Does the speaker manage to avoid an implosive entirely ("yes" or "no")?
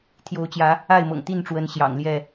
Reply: yes